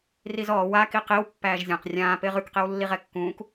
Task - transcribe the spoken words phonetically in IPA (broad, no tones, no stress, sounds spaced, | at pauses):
r i z ɔː w a k i q i w pː æː ʒ zʲ ã q rʲ ãː p ɪː ʁ ʉ k q i w lː i ʁ ɛ kː ũː k